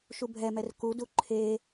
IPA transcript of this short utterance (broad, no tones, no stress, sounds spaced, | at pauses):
ʃ u bʱ ɛ m ɛ r k u d u ǃʰ e